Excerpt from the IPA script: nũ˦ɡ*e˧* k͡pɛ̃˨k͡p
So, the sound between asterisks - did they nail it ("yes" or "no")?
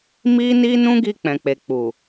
no